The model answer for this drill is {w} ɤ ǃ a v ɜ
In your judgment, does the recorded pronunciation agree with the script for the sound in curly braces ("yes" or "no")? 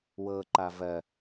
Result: yes